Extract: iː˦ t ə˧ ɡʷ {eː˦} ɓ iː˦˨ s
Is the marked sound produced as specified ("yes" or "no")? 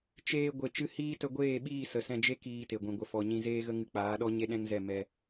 no